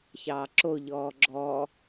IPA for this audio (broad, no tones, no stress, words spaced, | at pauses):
çɑːǁo ʎɔːɡ͡ǁɔː